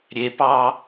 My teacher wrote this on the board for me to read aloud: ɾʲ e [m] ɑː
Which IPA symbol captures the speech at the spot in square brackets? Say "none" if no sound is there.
p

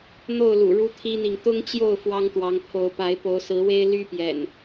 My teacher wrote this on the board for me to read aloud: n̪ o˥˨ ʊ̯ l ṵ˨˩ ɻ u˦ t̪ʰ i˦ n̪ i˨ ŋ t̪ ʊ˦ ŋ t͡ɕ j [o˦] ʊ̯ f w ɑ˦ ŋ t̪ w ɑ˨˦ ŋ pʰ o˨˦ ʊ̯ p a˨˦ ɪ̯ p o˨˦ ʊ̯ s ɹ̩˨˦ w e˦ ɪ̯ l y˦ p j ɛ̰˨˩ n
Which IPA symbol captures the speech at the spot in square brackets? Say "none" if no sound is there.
o˥˨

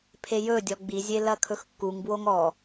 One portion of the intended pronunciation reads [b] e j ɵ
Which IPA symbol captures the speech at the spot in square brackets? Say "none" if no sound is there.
pʰ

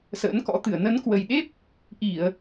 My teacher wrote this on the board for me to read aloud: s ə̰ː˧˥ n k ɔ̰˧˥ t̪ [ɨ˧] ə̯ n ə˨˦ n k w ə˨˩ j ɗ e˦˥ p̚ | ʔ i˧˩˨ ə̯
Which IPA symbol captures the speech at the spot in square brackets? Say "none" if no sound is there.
ɨ˧˩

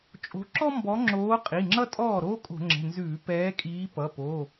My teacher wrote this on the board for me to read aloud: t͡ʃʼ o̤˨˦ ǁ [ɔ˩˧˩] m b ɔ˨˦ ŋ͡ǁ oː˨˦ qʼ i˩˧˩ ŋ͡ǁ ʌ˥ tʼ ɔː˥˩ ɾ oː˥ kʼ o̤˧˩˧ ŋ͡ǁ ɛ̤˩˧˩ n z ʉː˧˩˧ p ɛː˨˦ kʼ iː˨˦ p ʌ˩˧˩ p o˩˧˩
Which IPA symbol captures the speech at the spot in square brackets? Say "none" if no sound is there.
ɔ˥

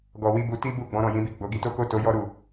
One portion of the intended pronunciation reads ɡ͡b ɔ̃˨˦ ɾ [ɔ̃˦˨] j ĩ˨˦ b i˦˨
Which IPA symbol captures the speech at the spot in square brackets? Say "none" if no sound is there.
ɔ̃˦˨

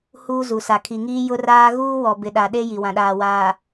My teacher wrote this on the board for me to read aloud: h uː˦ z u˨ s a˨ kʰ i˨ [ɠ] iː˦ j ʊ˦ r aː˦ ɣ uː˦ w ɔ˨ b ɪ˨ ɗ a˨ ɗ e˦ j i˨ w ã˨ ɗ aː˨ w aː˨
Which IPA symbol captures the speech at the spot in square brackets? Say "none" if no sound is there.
ŋ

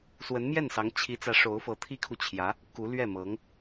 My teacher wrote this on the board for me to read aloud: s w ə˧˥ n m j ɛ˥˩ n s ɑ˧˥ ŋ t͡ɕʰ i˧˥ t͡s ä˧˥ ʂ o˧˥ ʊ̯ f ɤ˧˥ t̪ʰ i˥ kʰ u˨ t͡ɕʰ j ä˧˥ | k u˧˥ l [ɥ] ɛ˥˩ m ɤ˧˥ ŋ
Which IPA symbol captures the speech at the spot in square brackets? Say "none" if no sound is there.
ɥ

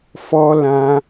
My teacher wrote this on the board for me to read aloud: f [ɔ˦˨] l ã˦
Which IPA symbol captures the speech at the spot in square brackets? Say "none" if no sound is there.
ɔ˦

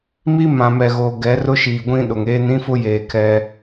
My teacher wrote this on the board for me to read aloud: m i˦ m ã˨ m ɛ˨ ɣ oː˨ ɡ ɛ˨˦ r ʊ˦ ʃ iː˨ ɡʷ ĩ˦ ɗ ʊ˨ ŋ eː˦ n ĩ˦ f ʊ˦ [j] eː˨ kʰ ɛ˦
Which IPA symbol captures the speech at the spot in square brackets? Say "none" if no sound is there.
j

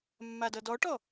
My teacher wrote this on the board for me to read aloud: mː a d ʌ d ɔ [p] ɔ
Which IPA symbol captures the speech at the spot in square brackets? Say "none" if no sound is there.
ʈ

